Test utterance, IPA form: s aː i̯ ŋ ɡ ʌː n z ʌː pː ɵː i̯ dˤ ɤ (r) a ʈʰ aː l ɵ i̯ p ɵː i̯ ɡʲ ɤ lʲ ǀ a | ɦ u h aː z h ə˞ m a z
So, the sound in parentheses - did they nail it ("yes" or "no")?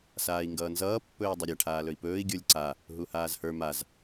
no